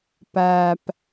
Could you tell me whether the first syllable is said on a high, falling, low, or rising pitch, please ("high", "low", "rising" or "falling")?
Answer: low